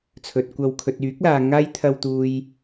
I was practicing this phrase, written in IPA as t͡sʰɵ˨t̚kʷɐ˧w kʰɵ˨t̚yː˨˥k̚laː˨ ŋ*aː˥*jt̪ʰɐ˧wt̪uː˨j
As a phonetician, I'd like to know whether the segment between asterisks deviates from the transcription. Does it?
no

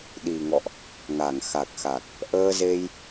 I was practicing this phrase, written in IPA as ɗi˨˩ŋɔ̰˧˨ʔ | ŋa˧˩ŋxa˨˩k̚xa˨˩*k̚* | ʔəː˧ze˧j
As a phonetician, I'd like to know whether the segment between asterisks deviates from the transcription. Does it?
no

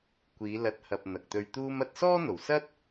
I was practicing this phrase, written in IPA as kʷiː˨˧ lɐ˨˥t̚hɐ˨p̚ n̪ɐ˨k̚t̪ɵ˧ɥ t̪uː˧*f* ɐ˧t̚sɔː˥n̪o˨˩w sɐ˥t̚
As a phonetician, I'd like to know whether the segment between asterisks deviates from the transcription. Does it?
yes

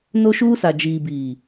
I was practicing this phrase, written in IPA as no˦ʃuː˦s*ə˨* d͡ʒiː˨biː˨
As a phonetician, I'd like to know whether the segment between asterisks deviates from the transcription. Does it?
yes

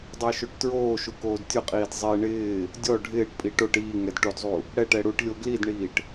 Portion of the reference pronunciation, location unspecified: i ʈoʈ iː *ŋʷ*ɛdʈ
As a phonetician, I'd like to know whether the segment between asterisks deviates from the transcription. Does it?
yes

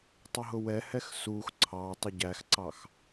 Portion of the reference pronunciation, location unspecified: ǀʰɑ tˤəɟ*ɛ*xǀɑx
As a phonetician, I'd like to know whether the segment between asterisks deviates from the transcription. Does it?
yes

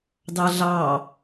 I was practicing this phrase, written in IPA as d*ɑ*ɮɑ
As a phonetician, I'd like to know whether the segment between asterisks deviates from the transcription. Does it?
no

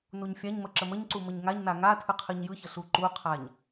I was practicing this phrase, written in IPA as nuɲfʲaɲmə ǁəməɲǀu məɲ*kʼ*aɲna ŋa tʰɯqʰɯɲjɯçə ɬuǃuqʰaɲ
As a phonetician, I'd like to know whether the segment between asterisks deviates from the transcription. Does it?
yes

